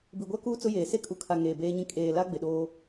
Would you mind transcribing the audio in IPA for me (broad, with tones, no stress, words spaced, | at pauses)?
bi˨ɡʷa˦kuː˦ t͡sʊ˦jeː˨ se˦kʼu˨kʰa˨ ŋeː˨beː˦ɲĩ˦ kʼeː˨la˦ ɡ͡bɪ˨ɗoː˦